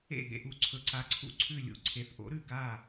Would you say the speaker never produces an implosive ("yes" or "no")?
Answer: no